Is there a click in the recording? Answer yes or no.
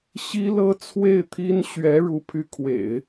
no